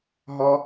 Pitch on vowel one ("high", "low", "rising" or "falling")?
high